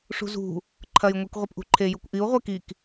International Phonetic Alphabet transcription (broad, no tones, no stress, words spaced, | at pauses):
ʂṳzṳ | ǃʰɐjŋʷik ʁʷepʔṳǃʰe jukʷʔiu̯ ʁʷekik